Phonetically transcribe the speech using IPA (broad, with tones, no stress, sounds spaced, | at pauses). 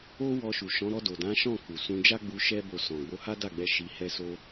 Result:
o˦ w ɔ˧ ʃ u˨ ʃ ɔ̃˨˦ ɾ ɔ˧ d o˨ d ã˨˦ ʃ ɔ̃˦˨ k u˨ s ũ˧ d͡ʒ a˦ ɡ͡b u˧ ʃ ɛ˦ b o˧ s ɔ̃˨ ɡ͡b o˧ h a˦ d a˦˨ ɡ͡b ɛ˧ ʃ i˧ h ɛ˦ s o˦